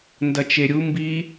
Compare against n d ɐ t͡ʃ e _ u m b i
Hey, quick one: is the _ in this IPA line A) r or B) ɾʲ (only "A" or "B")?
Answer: B